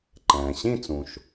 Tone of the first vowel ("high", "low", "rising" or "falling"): low